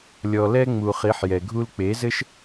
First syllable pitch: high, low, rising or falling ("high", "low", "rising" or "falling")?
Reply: low